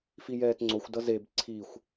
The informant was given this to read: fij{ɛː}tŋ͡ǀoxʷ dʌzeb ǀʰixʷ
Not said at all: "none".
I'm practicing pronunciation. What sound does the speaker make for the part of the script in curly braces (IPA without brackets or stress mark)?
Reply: ɛː